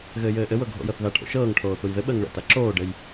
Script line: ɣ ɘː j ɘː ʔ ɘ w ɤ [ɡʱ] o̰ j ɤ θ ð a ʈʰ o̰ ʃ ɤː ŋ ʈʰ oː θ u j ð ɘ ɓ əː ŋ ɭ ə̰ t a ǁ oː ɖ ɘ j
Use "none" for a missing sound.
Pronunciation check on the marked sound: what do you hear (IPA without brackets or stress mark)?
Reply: ɡʱ